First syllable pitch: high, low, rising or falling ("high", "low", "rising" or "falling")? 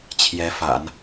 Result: rising